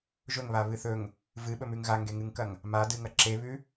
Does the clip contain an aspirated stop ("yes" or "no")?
no